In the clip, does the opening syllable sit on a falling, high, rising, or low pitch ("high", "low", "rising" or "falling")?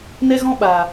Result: high